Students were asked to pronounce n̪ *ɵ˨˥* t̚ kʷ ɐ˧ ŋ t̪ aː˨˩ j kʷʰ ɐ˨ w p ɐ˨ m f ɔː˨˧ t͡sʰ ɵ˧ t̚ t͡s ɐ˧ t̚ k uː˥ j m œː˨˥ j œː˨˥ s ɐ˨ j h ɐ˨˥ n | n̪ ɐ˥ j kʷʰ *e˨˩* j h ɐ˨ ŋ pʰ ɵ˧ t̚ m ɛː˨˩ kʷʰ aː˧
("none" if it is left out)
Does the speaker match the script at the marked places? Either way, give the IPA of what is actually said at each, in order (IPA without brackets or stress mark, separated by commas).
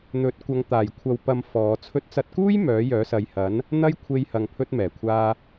ɵ˨˥, e˧